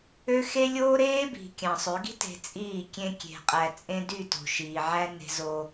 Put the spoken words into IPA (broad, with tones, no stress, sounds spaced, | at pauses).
ø˦ x e˦ lʲ oː˦ ɾ eː˦ b i̤˨ kʲ ɑ̃˨ sˤ ø˨˦ ɡ i̤˦ t e̤˨ t͡sʼ iː˦˨ kʲ ẽ˦ kʲ e̤˨ qʼ æ˨ t͡sʼ ẽ˦ d y˦˨ t o̤˨ ʃ iː˨ ʕ æ˦ n e̤˦ z o˦